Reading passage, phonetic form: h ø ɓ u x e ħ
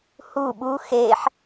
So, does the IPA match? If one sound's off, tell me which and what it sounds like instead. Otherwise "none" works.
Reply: ø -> u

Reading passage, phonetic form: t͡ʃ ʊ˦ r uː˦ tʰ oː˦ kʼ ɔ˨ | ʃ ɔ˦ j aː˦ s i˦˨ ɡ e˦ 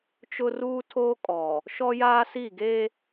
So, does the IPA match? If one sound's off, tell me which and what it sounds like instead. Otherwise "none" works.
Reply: none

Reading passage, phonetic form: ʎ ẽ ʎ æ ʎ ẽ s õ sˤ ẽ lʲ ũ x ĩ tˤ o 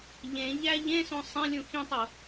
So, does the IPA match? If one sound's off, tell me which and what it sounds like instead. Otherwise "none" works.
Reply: none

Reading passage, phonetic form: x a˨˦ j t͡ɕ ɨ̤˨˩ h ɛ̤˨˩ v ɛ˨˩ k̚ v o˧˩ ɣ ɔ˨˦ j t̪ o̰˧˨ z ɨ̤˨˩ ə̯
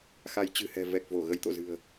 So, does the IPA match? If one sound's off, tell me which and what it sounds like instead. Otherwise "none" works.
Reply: ɔ˨˦ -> ə˨˦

